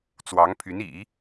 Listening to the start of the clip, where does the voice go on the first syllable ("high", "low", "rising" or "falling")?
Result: rising